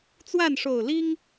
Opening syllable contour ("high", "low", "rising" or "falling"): falling